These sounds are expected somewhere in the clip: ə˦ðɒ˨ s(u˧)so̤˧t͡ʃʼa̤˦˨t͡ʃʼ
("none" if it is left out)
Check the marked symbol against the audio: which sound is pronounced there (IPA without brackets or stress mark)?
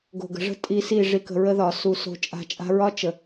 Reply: u˧